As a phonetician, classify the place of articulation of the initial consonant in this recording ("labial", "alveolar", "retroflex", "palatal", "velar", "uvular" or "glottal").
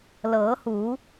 alveolar